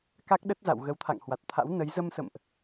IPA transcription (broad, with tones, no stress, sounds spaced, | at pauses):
k a˦˥ k̚ ɗ ə˦˥ t̚ z a̰˧˨ w ɣ ə˨˦ w t̪ʰ a̰˧˨ ŋ h w a˨˩ t̚ t̪ʰ a̰˧˥ w n ə˨˦ j z ə˧ m s ə̰˧˨ m ʔ